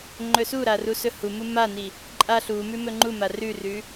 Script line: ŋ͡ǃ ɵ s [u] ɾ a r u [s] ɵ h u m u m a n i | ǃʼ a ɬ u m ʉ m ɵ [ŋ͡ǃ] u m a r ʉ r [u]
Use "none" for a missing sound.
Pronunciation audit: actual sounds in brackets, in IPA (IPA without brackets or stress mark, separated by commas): u, s, ŋ͡ǃ, ʉ